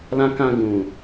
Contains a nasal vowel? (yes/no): yes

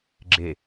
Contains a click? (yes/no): yes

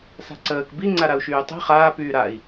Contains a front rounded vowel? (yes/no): yes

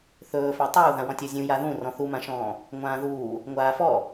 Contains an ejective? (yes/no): no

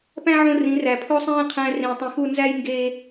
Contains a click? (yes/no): no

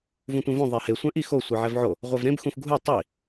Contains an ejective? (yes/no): no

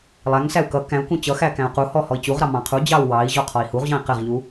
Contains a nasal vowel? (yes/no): yes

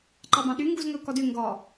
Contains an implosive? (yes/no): yes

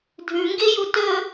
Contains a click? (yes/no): no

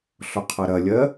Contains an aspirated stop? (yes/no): yes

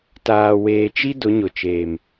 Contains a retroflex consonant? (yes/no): no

